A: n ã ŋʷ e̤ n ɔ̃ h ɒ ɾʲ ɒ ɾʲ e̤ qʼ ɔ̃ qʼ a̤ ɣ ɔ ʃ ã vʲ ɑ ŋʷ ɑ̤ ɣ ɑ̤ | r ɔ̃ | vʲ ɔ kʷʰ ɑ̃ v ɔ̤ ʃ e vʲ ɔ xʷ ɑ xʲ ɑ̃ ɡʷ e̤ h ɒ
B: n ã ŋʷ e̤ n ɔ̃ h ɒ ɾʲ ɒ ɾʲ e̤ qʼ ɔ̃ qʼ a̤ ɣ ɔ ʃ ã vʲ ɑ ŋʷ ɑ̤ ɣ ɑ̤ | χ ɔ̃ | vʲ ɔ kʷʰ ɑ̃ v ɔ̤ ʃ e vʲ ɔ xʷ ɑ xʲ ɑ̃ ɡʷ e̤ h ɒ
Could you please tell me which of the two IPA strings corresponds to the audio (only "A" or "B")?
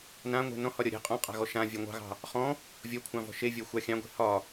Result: B